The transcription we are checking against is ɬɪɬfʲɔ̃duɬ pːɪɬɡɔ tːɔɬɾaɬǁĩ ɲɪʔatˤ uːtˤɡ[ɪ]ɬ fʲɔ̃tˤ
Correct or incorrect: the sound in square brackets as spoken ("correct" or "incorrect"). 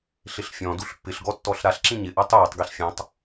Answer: incorrect